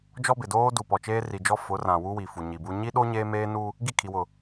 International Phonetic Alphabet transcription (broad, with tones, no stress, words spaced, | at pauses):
d͡ʒɔ˦bɪ˨ doː˦ du˨pɔ˨ t͡ʃeː˦ri˨d͡ʒɔ˦ fʊ˨˦rã˨ wu˦wi˨fu˨ ɲi˨bu˦ ɲi˦ɗo˦ ɲeː˦meː˦ nu˦ | ɡi˦˨kʰi˨wʊ˨